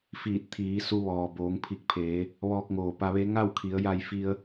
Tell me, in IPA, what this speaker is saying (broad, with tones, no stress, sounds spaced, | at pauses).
f iː˧˩ t̚ t̪ʰ iː˩˧ s u˧ ʋ ɔː˩ b oː˩˧ ŋ pʰ i˧˩ k̚ pʰ eː˩˧ | ʋ ɔː˧ k̚ ŋ oː˩ p a˧ ʋ e˧˥ ŋ a˥˨ w kʰ i˩˧ ə̯ j a˧ j f i˧ ə̯